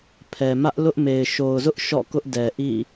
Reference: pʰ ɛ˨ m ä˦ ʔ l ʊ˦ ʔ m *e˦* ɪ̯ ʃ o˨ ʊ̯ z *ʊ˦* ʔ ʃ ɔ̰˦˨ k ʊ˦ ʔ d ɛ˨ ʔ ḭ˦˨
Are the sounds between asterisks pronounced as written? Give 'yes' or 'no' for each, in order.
no, yes

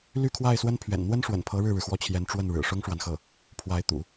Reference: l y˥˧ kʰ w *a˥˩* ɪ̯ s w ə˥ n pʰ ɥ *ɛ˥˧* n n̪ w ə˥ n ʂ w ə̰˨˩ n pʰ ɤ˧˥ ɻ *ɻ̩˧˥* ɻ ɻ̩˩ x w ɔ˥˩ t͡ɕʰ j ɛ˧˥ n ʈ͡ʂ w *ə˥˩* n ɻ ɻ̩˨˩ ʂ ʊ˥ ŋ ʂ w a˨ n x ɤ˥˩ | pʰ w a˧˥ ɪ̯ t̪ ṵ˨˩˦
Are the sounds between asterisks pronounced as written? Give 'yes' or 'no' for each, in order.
yes, no, no, yes

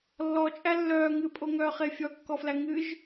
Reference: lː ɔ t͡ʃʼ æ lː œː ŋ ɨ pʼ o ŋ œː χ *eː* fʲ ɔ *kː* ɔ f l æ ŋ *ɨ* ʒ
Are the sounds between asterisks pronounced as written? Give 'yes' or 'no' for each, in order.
no, yes, yes

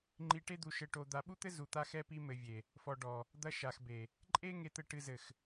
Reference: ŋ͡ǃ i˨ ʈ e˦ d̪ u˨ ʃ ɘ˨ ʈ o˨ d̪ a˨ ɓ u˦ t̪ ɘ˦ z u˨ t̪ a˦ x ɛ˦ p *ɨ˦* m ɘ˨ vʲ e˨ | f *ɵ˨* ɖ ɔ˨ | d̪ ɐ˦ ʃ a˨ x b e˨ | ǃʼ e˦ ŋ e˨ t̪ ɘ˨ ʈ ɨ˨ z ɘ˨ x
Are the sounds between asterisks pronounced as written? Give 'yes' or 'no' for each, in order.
no, no

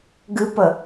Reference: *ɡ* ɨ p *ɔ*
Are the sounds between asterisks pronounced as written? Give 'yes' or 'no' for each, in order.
yes, no

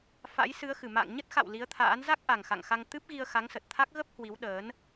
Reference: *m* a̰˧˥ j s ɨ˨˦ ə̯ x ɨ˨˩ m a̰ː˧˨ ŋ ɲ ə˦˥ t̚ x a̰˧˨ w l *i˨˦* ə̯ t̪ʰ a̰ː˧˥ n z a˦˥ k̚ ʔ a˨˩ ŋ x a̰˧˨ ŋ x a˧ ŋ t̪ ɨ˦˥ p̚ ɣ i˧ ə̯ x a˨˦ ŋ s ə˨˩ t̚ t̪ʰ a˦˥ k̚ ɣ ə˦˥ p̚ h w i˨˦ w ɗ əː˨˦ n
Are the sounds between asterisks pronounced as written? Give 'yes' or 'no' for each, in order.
no, yes

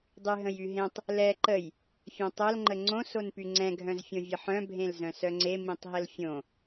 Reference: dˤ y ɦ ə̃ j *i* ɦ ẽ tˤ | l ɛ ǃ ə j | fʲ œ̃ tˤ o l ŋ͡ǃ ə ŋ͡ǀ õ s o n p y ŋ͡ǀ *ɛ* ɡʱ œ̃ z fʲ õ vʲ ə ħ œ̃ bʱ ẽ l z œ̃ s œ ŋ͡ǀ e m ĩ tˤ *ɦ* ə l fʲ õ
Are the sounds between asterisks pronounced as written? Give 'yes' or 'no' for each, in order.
no, no, yes

